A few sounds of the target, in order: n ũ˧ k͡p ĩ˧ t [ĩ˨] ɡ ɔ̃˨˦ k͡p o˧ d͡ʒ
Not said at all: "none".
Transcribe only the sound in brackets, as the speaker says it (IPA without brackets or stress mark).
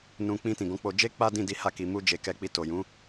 ĩ˨